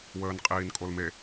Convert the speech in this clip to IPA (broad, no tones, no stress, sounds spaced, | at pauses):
w əː n qʼ iː n kʼ o l m e